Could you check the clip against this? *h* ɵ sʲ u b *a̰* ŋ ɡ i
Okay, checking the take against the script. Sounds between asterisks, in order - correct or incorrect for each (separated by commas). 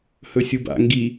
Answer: correct, correct